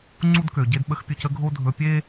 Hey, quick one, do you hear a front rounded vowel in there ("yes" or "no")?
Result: yes